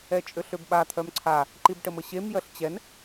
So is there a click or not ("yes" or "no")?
yes